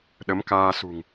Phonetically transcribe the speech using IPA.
ɗə˨˦mkaː˧sṳ˨˩ŋ

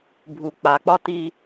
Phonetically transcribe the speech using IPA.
bʱu˦k͡pa˦ k͡pɒ˦ti˦

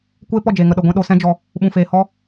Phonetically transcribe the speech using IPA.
kʷeː˦pɔ˦˨d͡ʒeː˨ŋə˨ ɗə˨ɡʷɛ̃˧ ɗo˧sɛ̃˦d͡ʒɔ˧ | ɓũ˨feː˨hɔ˦

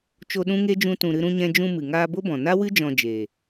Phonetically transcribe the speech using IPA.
t͡ʃo˧ɗũ˦ŋe˦d͡ʒũ˧ tũ˨ɾɨ˧ɾũ˧ɲɛ̃˧ d͡ʒũ˧mɨ˨ ŋaː˧bo˦bɔ̃˨ na˦wɨ˦ d͡ʒɔ̃˧d͡ʒeː˨

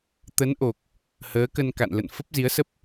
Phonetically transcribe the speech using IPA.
t̪ə˨˦n ʔo˨˩k̚ | həː˨˦kə˧n ka̰˧˨nlə̰˧˨n fə˦˥p̚zi˨˦ə̯sə˦˥p̚

